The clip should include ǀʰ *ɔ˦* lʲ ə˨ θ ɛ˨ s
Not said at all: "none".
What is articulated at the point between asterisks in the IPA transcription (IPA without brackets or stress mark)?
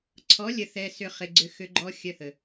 ɔ˨˦